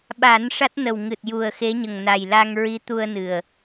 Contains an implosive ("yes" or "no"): yes